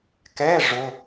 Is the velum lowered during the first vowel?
no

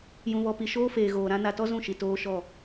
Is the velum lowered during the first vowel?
yes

